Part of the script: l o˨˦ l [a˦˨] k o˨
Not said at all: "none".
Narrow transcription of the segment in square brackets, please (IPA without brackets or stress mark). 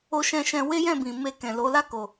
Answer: a˦˨